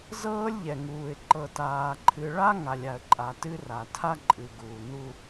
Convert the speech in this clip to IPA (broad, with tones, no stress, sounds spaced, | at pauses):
z ɤː˦ lʲ ʎ ɛ˨ ŋ uː˨ ɪ̯ ǃ ɤ˨ t aː˨ ǃʰ ɨ˨ ɭ a˦ ŋ a˨ lʲ a˨ ə̯ ǃʼ a˨ t ɨ˦ r a˨ tʰ a˦ ǃʼ ɨ˨ ɡ uː˨ n u˦